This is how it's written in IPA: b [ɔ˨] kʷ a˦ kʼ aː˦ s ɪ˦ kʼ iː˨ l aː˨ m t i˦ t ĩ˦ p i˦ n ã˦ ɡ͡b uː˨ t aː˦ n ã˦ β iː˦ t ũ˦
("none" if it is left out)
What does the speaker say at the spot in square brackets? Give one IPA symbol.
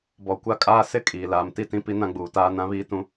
ɔ˨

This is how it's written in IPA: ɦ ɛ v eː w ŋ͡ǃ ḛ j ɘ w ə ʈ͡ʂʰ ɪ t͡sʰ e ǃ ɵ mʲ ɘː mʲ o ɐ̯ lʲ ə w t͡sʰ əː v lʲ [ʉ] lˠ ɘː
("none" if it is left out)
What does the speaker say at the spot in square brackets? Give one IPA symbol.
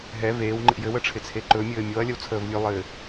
ʉ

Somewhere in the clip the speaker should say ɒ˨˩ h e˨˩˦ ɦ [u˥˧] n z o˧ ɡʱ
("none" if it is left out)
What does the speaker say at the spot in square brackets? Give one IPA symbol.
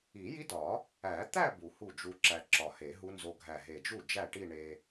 u˦˥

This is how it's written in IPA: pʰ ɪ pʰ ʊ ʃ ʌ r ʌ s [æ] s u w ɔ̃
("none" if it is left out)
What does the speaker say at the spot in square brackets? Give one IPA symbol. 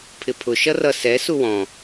ɛ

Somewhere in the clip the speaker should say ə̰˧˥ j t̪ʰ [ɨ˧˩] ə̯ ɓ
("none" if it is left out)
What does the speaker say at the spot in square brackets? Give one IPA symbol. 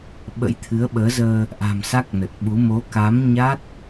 ɨ˨˦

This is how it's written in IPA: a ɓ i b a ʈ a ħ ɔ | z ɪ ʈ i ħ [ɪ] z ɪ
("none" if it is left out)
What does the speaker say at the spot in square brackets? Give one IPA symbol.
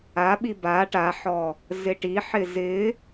ɪ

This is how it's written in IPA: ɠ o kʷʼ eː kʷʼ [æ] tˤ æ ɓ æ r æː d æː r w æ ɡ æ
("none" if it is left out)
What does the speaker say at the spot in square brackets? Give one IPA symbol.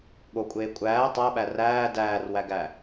æː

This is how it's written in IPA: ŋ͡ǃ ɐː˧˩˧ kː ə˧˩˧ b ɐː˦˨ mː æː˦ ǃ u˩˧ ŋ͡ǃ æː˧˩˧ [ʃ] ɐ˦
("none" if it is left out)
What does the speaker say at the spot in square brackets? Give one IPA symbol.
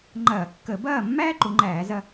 z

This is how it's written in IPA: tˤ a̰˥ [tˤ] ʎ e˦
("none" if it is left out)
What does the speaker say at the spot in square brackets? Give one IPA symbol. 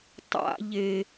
none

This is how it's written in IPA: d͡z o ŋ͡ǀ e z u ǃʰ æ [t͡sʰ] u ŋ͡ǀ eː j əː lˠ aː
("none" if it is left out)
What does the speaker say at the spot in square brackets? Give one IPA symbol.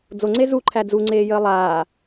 d͡z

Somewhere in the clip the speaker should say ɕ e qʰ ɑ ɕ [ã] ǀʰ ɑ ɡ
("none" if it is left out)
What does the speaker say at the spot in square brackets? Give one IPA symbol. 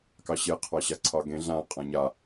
a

